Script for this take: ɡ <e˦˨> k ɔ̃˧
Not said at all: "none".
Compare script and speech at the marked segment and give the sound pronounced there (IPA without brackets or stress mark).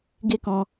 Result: e˦